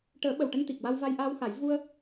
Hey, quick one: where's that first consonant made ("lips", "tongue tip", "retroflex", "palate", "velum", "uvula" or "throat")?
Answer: retroflex